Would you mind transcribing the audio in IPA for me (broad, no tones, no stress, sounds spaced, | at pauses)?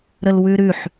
ɾ ə l w ʉ ɾ ʉ ħ